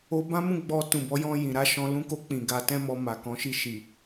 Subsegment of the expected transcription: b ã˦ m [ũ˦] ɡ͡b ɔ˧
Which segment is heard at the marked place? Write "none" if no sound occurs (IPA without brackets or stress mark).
ũ˦˨